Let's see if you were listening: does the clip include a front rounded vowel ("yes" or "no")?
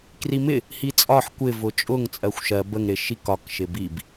no